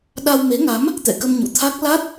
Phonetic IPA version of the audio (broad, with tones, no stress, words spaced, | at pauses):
ɗa˧wme˨˦ŋa˨˦m | t̪ɛ̰˧˨kə˧m ɲṵ˧˨t̪ʰa˦˥k̚ la˦˥t̚